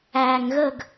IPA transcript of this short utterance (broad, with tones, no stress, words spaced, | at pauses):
æː˧ŋɣə˥˧ɡ